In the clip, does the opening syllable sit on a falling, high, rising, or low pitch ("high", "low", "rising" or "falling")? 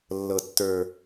low